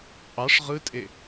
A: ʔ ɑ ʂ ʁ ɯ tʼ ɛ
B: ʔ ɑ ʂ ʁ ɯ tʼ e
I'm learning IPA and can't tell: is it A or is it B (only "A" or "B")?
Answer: B